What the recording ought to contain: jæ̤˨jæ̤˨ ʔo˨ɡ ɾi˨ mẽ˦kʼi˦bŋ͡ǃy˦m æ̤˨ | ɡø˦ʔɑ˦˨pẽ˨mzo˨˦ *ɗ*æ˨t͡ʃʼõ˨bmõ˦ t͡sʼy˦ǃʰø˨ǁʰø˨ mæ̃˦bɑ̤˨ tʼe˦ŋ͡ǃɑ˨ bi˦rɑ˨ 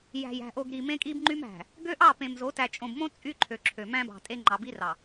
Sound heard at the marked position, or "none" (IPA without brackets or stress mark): t